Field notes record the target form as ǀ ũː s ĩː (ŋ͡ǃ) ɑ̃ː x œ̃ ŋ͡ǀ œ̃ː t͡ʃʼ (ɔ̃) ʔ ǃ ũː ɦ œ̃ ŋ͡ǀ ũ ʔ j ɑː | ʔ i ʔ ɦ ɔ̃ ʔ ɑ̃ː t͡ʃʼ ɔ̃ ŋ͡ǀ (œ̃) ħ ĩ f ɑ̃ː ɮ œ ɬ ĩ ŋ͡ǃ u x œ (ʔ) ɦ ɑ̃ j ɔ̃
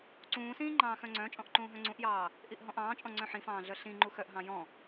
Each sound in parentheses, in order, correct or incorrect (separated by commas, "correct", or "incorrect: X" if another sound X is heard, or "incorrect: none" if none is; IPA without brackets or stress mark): correct, correct, correct, correct